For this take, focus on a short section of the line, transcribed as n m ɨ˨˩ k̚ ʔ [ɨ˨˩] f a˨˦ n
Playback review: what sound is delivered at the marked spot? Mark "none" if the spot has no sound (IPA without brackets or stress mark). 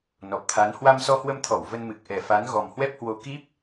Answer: ɛ˨˩